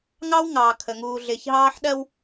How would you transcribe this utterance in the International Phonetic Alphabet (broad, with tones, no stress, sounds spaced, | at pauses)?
ŋ ɑ˦ w ŋ ɑː˨ kʰ ə˨ ŋ uː˨ ɮ ɪː˨ ç ɦ ɑː˦ ħ ɗ ɜ˦ w